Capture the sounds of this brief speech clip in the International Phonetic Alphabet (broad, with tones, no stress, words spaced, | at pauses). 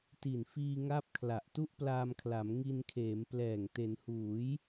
ti˨˩nfiː˧ŋa˦˥p̚ kʰla˨˩ʔtu˥˩ʔplaː˧mkʰla˩˦m ŋi˧nkʰeː˩˦mplɛː˨˩ŋ te˩˦nhuː˩˦j